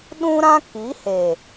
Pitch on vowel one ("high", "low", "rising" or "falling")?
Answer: high